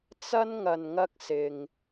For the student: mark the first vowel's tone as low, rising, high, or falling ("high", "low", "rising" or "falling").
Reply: high